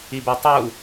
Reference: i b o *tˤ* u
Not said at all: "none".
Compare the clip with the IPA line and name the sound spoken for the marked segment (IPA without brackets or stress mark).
tˤ